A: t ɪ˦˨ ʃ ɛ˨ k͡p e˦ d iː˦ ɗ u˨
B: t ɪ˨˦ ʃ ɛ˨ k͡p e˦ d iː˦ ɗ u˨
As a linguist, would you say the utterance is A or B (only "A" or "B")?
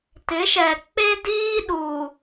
B